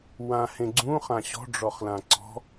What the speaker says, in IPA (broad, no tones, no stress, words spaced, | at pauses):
wãhẽɡ͡ǀũ χãɕɔ̤ɖ͡ʐɔχlã ǀɔ̤